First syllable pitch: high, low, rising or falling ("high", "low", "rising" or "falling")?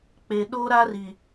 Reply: low